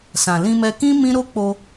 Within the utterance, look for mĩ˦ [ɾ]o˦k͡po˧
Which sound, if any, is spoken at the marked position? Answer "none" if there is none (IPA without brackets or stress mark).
ɾ